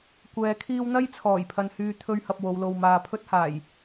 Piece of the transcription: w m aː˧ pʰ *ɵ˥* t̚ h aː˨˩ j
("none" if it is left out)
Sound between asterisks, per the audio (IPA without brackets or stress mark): ɵ˥